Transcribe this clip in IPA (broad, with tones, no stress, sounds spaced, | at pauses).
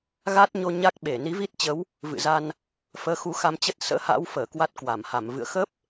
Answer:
ɣ a˦˥ t̚ ɲ o˧ ɲ a˦˥ k̚ ɓ e˧˩ n i˨˦ v i˦˥ t̚ t͡ɕ ə˨˦ w | v ɨ̰˧˨ z a˧ n | f əː˨˦ x u˨˦ x a˧ m t͡ɕ ə˦˥ t̚ s ə̰ː˧˥ h a̰ː˧˥ w f əː˧˩ k w a˦˥ t̚ k w a˧˩ m h a˧˩ m v ɨ̰˧˨ ə̯ x ə˦˥ p̚